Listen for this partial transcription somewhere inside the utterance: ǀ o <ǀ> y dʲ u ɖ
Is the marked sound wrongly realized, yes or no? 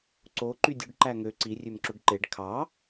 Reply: yes